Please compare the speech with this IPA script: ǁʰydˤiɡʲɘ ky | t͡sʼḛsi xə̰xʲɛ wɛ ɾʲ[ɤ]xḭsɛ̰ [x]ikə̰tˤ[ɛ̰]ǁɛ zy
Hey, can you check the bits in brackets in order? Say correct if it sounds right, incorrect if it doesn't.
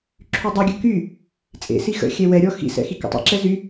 incorrect: ɔ, correct, correct

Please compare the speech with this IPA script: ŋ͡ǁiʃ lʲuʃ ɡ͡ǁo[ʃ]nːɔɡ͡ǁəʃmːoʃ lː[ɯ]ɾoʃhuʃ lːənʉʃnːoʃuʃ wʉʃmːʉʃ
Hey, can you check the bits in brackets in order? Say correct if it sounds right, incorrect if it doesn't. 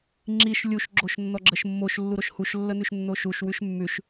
correct, incorrect: u

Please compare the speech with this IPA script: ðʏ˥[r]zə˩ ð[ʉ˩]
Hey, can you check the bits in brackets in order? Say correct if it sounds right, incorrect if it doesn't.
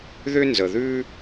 incorrect: n, incorrect: ʉ˥

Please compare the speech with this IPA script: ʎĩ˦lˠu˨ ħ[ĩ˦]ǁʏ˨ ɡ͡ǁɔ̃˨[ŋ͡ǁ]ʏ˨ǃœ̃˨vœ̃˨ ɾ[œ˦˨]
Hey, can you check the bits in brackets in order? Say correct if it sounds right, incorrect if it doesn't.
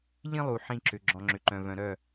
correct, correct, correct

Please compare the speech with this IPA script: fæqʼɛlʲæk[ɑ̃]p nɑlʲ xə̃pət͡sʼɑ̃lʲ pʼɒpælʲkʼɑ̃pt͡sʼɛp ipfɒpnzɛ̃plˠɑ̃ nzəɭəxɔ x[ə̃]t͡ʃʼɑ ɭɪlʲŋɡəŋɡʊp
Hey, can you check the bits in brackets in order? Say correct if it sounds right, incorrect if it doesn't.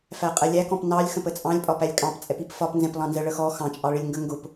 incorrect: ɔ̃, incorrect: ɑ̃

